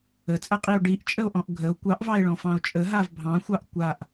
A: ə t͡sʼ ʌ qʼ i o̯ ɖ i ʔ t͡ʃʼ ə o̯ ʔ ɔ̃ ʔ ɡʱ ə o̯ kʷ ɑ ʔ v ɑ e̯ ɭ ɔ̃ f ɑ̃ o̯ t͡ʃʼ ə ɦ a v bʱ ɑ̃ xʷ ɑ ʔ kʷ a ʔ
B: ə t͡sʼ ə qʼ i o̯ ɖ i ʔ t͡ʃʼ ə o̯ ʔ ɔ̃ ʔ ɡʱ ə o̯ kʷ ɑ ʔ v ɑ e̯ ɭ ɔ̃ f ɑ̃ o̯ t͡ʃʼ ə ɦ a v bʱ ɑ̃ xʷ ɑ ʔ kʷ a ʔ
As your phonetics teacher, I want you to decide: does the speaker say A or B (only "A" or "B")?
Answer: A